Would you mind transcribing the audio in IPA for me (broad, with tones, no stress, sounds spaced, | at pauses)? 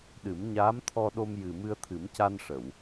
ɗ ɨ˨˩˦ m ɲ aː˧˥ m t̪ʰ ɔ˧ ɗ o˧ m j ɨ˨˩ m ɨ˧ ə̯ t̪ʰ ɨ˨˩˦ m c a˧ n ʂ ə˨˩˨ w